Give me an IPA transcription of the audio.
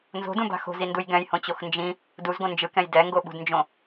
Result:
nzo̤dũba̤ xo̤zinduj ɡɛ̃jhõt͡ɕox nd͡ʒĩ | duzɡõ nd͡ʒɯkɛ̃j dɛŋɡoɓṳdnd͡ʒõ

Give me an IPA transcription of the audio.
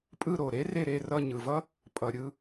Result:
pʼɯ˦˨ɾo˨˩ɾe˥ re˦˨ɾe˦˨rʌ˦˨ ɲɯ˨˩vʌ˥ | pʼʌ˨˩ɾʲɯ˦˨

